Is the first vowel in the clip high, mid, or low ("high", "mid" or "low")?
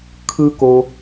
high